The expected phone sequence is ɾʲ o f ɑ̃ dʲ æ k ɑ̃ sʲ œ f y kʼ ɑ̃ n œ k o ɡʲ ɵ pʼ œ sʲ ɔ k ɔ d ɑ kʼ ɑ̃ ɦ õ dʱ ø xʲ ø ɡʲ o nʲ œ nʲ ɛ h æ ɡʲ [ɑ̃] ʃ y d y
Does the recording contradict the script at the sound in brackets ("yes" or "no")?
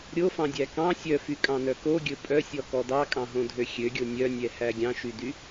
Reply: no